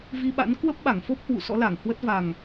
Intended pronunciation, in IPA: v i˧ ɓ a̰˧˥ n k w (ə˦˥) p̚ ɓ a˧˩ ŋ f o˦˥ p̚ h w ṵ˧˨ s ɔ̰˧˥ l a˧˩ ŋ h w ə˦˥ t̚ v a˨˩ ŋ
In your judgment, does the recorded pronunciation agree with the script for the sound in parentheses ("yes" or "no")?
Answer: yes